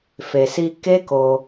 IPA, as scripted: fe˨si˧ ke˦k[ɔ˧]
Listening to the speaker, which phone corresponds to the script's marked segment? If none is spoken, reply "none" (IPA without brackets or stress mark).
o˧